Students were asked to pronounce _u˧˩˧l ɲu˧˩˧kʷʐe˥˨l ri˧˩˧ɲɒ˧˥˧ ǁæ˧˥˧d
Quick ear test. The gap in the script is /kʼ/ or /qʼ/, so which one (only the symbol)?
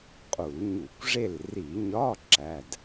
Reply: qʼ